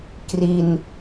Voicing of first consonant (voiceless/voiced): voiceless